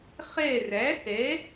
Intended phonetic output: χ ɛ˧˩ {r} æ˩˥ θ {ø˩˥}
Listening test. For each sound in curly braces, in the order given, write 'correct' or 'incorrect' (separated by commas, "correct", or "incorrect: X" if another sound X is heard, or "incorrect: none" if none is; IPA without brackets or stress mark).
correct, incorrect: ɛ˩˥